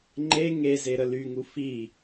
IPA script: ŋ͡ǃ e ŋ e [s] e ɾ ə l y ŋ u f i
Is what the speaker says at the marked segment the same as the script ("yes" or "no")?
no